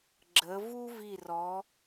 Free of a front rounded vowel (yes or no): yes